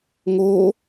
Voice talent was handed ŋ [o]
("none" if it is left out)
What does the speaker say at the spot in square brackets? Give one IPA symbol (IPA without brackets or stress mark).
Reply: o